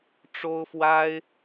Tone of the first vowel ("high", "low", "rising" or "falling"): high